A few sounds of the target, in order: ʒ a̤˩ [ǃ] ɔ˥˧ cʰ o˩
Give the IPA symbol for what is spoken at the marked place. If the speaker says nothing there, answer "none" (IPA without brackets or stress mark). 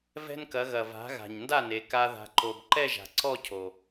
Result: ǀ